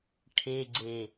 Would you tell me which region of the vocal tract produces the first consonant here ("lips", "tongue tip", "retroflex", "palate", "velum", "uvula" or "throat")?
retroflex